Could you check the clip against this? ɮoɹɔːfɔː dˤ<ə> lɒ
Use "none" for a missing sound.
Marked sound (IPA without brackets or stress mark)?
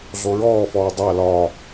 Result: a